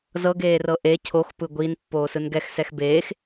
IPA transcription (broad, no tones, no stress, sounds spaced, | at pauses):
z ɤ ɡ eː r ɤ ʔ e cʰ o x p ɯ ɡʷ i n pː oː s ɯ n ɡ ɛ x s ɛ x b eː x